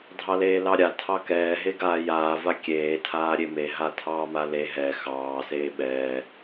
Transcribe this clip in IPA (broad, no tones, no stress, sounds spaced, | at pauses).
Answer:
dʱ ɑ l eː l ɑ ɾʲ a tʰ ɑ k ɛː ɦ e ɡ aː j aː v a kʲ eː tʰ aː ɾʲ e m e ɦ a tʰ ɑː m a l e ɦ ɛ x ɑː s eː ɓ ɛː